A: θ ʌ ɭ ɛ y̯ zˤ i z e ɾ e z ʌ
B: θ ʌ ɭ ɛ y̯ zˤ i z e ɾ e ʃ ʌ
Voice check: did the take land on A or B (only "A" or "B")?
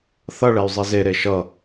B